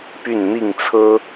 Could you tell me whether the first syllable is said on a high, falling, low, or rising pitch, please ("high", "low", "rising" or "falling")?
falling